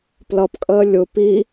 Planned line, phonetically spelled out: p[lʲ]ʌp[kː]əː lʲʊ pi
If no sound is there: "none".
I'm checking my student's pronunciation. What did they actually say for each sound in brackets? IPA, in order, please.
l, kʼ

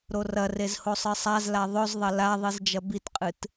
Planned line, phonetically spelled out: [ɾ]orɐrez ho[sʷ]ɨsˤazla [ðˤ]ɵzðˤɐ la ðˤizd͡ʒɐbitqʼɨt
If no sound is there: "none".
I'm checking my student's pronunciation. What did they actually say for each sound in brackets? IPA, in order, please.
ɾ, sˤ, ðˤ

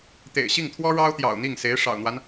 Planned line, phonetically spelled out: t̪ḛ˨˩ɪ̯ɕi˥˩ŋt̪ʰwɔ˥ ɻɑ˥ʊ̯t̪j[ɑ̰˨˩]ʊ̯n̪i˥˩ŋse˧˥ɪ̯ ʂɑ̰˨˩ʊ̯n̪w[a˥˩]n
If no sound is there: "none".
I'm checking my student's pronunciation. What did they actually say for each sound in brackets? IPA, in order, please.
ɑ̰˨˩, a˦

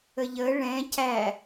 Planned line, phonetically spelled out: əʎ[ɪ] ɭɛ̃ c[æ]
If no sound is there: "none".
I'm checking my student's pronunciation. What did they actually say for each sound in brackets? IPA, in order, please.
ə, æ

